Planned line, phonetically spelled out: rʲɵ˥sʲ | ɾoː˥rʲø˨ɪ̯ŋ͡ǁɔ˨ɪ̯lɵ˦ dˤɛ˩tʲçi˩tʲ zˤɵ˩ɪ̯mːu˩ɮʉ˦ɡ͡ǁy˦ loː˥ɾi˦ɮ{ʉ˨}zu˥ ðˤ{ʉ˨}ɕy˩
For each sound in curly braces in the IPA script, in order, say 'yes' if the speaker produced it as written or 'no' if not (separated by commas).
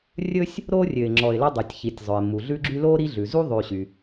no, yes